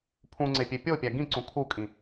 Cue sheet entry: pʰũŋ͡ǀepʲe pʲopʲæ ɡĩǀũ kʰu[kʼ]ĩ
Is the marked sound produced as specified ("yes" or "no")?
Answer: yes